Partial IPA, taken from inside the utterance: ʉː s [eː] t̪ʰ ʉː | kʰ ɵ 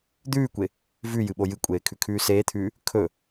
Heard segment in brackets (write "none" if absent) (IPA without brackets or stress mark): eː